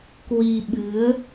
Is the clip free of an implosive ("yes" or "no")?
no